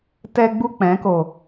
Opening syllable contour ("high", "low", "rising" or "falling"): high